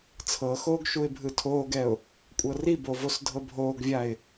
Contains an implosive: no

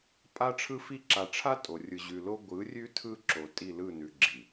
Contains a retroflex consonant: yes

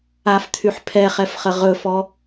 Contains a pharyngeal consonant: yes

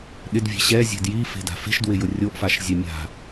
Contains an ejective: no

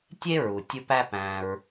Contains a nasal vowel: yes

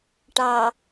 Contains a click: no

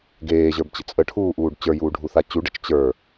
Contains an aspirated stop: yes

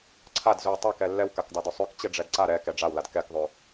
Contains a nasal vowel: no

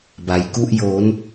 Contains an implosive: no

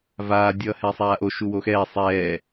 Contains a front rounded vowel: no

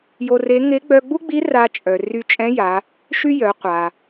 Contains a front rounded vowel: yes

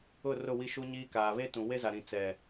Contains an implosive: no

